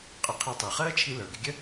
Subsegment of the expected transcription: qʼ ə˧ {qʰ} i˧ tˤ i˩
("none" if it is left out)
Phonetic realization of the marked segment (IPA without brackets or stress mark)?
qʰ